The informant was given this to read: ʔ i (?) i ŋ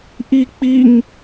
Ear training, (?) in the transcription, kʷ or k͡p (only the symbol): k͡p